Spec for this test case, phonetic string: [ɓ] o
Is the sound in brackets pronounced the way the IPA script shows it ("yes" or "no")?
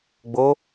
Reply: no